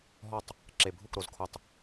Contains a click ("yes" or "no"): yes